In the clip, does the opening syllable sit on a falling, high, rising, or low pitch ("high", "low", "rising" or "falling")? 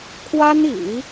high